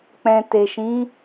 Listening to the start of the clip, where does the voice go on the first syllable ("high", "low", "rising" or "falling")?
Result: low